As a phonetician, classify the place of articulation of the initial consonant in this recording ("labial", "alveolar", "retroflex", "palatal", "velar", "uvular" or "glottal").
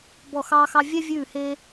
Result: labial